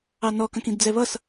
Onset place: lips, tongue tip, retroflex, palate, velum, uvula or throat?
tongue tip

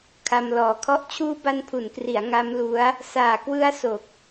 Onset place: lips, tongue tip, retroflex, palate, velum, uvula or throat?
velum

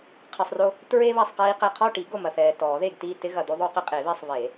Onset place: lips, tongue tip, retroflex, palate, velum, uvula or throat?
uvula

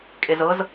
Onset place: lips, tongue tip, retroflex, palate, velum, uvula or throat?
velum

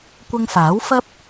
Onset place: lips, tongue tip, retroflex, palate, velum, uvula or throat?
velum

